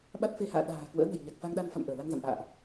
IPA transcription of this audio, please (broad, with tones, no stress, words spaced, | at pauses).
ɓa˦˥t̚fe˧ha̰ː˧˨ ɗa̤ː˨˩ kwə̰ː˧˥nə̤˨˩jɲa˨˩k̚ fa˧ŋɗa˧nfa̰˧˨m ʔəː˧˩la˧ŋza̰˧˨mʔa̰ː˧˨ʔ